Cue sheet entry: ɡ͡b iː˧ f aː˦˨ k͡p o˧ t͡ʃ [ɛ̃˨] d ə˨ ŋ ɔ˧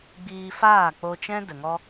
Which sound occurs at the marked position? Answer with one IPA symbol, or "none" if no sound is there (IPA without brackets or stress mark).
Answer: ɛ̃˦